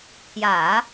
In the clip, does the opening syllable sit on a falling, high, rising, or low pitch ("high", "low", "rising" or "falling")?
low